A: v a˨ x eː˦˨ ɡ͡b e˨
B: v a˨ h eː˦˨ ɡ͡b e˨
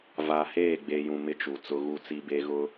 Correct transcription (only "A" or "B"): B